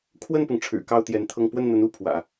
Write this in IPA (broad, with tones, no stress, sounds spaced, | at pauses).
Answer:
kʰ w ə˥˩ n p ʊ˩ ŋ ʈ͡ʂʰ ɻ̩˨˩ k ɑ˥˩ ʊ̯ t̪ j ɛ˧˥ n t̪ʰ ɤ˥˧ ŋ p w ə˥˩ n n̪ ə˧˥ n u˥˩ pʰ w ä̰˨˩˦